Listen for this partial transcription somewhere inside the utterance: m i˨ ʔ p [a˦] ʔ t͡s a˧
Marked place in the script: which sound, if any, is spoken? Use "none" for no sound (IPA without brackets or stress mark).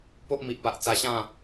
a˨